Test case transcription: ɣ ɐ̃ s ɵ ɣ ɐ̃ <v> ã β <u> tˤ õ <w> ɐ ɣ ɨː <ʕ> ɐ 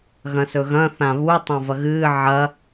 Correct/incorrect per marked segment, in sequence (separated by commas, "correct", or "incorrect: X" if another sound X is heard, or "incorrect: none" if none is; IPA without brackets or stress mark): incorrect: θ, correct, incorrect: v, correct